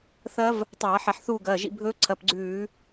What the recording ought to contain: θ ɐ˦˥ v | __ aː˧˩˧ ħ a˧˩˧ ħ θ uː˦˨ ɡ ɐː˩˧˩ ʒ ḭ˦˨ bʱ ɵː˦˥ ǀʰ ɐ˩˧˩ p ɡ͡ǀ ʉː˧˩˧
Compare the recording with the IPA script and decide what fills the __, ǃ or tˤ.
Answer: tˤ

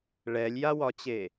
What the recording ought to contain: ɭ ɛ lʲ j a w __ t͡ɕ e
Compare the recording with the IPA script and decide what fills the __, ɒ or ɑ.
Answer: ɒ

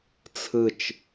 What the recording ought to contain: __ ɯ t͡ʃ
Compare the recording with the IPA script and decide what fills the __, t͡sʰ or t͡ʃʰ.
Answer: t͡sʰ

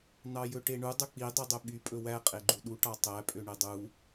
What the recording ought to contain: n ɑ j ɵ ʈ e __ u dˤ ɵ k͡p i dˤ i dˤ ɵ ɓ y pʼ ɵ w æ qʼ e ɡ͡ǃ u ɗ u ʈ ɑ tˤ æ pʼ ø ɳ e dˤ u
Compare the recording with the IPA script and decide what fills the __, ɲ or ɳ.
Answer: ɳ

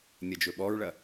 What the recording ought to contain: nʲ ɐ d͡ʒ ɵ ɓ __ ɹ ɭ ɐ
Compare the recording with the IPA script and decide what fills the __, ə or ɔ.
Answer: ɔ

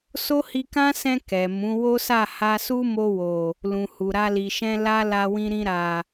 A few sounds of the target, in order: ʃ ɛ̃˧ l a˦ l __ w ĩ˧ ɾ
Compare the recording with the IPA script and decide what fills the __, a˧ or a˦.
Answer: a˧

